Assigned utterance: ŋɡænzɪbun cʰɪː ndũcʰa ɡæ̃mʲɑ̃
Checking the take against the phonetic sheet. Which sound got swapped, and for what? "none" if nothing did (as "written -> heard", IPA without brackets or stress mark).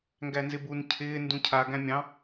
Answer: none